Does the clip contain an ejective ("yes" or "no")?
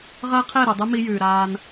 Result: no